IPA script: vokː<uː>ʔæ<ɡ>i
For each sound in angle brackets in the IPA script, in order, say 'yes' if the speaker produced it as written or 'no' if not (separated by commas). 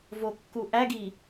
no, yes